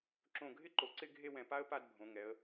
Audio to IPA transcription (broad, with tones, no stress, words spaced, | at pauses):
ǁõ˧˩ɡʱɪ˥ǃo˩˧ ǀɪ˥˧ɡʱe˥˧wɛ̃˧˩pa˥ə̯ pa˥˧dbʱõ˩˧ŋɛ˩˧ə̯